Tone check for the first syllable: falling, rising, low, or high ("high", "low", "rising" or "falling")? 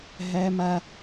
high